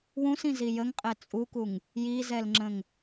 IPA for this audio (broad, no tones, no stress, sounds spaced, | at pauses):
w ũ s ĩ z i j ə ŋ qʼ ɛ t͡sʼ u k u ŋ | j i z ɛ l ŋ͡ǁ ə̃ ŋ